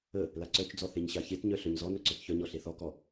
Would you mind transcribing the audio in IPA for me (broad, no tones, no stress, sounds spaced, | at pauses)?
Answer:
ə | l a ǀ œ t͡ʃ d͡z ɔ θ e ɲ ɕ a ç e t ɲ œ ɬ œ ɲ z ɔ n œ ǀ œ t ç œ ɲ ɔ ɬ e θ ɔ k ɔ